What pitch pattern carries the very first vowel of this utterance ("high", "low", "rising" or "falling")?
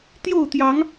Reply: falling